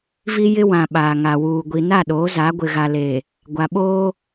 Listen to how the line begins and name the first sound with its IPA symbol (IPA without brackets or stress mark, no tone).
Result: v